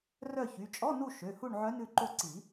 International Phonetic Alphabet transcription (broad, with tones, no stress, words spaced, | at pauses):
rœ˦˨çy˩˧˩ t͡ʃʼɔ˧˥˧nu˦˨ ʃø˩˧˩hu˦˨ɳ ʕœ˧˥nʉ˦˨ǃo˦˨ǀi˨˩˦